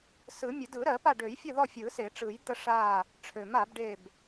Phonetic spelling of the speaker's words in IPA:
s ɯ˨˩˦ mʲ ə˨˩˦ d ɯ˨˩˦ ɾ ɜ˨˩˦ p a˦˨ ɖ ø˨˩˦ j fʲ ə˦˨ ð ɔ˦˨ fʲ ɯ˨˩˦ s e˨˩˦ ʈ͡ʂ ɯ˨˩˦ j d̪ ə˦˨ ʂ a˦˨ | ʈ͡ʂʰ ø˨˩˦ m a˨˩˦ b ɖ e˦˨ b

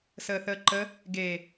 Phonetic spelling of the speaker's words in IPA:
s əː θ əː ǃ ə | ɡ e

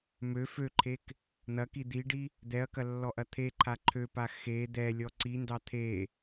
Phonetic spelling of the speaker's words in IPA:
m ø f ø ǃʰ e k | n̪ ɐ k i d̪ i ɖ i | d̪ ɛ ɐ̯ k ɐ lː ɔ ʔ ɐ t̪ʰ e ǃʰ a ǃʰ ø p a x e d̪ ɛ lʲ ɔ ǀ i n d ɑ t̪ʰ e

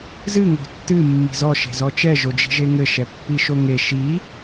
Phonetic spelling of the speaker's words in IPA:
z ɨ ŋ o̤ tː ɨ mː i̤ z ɔ ʃ e̤ z ɔ t͡ʃ ɛ ʒ o d͡ʒ i̤ ʒ e ŋ ɘ ʃ ɛ pː i ʃ o ŋ e ʃ i

